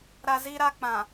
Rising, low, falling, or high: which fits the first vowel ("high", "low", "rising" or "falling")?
high